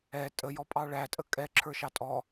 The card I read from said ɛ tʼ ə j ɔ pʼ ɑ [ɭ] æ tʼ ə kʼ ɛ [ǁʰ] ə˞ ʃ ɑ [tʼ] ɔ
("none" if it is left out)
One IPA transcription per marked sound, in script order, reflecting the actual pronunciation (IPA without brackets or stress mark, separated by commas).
ɭ, ǁʰ, tʼ